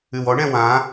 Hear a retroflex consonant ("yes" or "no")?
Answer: yes